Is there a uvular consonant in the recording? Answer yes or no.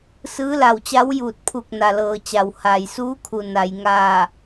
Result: no